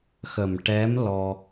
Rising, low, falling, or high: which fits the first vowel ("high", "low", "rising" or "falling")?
low